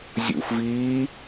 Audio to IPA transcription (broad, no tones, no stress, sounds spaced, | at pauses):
zʲ ṵ f v iː